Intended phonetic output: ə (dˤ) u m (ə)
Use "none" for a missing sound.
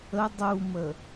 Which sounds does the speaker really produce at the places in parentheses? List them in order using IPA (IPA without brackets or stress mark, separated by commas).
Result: dˤ, ə